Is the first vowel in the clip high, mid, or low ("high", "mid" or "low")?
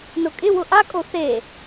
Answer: high